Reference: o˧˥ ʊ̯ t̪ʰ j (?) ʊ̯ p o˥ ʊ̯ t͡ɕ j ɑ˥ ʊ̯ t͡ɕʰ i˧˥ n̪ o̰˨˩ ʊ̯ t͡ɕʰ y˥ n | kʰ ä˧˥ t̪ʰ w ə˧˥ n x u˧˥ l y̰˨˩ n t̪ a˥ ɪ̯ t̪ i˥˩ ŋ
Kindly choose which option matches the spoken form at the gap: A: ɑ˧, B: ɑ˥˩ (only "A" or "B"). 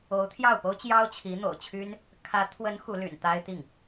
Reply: B